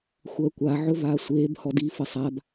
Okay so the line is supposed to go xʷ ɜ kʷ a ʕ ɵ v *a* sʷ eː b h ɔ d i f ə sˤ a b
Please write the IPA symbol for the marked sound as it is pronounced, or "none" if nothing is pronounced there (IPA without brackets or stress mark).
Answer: aː